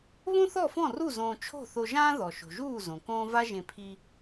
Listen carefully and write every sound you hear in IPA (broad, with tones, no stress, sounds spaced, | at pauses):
β õ˥ θ ɔ˥˩ f ɔ̃˥˩ r u˥˩ z õː˧ t͡ʃʰ o̤˥˩ θ o˧ ʒ ãː˥ ð ɔ˩ ʃ o̤˩ ʒ uː˥˩ z õ˩ k õː˥ v a˥ ʒ ẽ˧ pʰ i˧